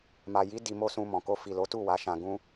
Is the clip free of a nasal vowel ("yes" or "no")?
no